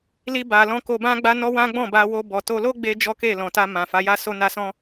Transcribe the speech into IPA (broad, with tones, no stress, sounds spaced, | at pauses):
l i˧ b a˨ l ɔ̃˧ k o˧ b ã˦ ɡ͡b a˦ n ɔ˦ w ã˦ ɡ͡b ɔ̃˦˨ b a˧ w o˧ b ɔ˨ t o˧ l o˦ ɡ͡b e˧ d͡ʒ ɔ˦ k e˦˨ l ɔ̃˨ t a˧ m ã˨ f a˨˦ j a˦˨ s o˧ n a˧ s ɔ̃˦